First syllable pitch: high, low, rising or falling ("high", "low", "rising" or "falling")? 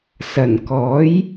low